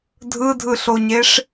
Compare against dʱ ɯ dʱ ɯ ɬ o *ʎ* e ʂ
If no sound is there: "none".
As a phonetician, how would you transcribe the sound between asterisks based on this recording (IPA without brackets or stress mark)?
ɲ